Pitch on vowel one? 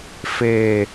low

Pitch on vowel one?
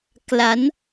rising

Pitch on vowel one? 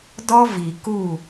high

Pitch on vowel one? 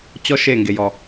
high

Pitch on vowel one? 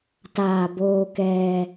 low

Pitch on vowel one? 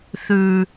low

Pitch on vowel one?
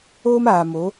high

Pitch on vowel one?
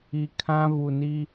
low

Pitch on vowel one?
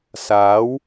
rising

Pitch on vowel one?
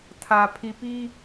low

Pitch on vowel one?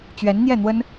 rising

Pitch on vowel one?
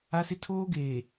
high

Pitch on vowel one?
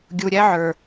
low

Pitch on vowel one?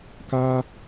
high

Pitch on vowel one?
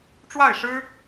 falling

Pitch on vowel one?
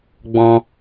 high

